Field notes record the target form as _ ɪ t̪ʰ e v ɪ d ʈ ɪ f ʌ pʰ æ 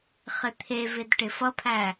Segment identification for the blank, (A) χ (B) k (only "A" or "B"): A